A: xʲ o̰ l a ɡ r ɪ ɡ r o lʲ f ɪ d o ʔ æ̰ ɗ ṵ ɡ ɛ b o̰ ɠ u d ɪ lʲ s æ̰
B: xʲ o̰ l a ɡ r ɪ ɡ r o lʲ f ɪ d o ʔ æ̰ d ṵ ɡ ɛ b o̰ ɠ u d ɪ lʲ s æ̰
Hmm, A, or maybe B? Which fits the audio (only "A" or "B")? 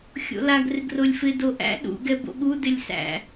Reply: A